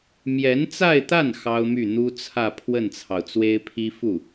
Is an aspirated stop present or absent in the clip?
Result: present